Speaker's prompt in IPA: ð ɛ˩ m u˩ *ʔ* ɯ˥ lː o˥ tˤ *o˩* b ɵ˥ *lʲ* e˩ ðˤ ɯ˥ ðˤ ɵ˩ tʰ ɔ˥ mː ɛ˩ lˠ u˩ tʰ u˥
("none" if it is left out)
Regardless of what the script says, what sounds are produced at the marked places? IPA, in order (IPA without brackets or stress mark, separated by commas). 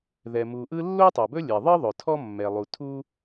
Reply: ʔ, o˩, lʲ